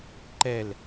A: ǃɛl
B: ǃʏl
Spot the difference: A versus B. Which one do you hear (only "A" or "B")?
A